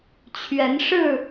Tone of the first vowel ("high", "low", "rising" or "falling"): rising